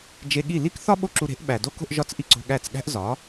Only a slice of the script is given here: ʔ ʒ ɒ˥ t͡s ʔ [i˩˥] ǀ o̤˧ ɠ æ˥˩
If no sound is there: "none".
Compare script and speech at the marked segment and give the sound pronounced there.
i˥˩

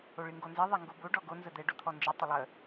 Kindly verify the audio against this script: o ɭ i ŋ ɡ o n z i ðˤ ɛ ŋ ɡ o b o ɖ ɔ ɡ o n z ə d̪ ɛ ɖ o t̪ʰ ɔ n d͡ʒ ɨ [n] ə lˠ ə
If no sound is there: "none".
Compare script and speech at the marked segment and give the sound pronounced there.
tˤ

